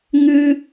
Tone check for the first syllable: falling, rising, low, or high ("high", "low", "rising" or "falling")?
high